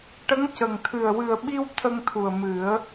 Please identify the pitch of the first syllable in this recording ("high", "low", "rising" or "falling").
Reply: rising